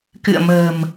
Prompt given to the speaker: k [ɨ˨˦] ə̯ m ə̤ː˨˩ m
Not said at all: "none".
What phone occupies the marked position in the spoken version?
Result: ɨ̰˧˨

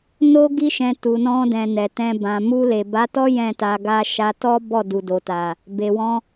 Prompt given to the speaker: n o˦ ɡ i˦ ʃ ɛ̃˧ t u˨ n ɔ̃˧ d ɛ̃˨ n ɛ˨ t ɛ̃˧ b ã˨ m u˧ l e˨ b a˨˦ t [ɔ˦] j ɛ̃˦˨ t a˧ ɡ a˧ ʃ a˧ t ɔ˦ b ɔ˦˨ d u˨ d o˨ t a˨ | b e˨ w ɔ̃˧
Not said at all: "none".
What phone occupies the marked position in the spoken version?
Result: ɔ˦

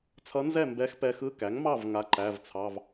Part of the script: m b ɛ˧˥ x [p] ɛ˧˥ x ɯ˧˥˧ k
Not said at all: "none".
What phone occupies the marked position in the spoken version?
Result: p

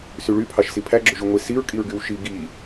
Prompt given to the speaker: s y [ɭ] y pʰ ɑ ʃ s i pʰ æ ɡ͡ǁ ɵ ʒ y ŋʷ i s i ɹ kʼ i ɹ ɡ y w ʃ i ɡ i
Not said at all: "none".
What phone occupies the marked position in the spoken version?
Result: ɭ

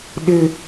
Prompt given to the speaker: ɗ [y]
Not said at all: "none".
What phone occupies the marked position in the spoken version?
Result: ɪ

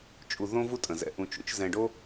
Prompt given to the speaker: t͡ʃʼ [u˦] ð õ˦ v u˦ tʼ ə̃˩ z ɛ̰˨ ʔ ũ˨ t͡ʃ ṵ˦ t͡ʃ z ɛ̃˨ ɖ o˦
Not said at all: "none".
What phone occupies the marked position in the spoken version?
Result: u˨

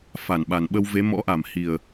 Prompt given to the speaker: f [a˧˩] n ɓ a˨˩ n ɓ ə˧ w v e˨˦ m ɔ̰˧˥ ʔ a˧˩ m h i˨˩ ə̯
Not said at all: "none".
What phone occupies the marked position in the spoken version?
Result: a˧˩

